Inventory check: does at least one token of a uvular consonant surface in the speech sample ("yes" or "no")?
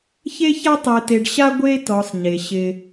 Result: no